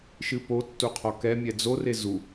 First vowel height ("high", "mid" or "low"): high